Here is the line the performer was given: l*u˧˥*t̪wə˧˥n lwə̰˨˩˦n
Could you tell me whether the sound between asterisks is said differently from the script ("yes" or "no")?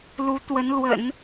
no